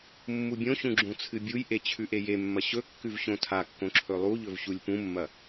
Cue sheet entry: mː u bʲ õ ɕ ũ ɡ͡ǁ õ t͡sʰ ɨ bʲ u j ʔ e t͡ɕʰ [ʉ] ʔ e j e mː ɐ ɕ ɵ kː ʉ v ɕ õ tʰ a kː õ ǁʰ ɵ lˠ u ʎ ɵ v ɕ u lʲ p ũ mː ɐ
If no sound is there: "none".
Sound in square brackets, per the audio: ʉ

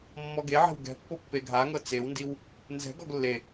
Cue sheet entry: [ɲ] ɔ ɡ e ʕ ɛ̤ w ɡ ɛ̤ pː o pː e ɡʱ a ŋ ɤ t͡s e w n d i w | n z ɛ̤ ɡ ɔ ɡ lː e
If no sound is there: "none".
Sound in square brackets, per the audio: mː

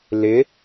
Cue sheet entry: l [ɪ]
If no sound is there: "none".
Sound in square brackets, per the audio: ɪ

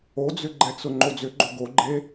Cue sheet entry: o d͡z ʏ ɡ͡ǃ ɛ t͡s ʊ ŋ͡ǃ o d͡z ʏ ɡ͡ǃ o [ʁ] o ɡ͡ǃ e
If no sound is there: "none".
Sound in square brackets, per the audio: ɡ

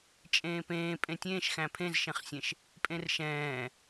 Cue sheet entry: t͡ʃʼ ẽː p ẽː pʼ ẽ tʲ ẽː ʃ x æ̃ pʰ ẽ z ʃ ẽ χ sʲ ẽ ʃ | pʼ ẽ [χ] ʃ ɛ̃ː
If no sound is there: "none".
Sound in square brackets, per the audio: r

